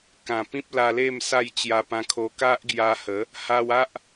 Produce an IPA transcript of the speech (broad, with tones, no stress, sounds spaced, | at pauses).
k ã˨˩ p ĩ˦ p̚ l a˧ l e˥˧ m s a˥˧ j t͡ɕ j a˧ p ã˧ kʰ o˧ k a˦ ʔ ɡ j a˧ h ə˨˦ | h a˧ w a˦ ʔ